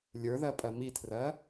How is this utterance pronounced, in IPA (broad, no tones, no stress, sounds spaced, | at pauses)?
lʲ ə˞ ð ɜ pʼ ɜ m i tʰ r ɜ